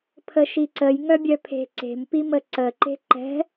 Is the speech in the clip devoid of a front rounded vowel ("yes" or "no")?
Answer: no